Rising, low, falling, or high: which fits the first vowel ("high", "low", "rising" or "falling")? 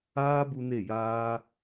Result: high